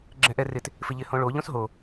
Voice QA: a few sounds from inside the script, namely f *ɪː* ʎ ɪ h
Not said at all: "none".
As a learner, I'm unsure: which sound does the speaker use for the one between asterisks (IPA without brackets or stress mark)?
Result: ɪ